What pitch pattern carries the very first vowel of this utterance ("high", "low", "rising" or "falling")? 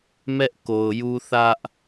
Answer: high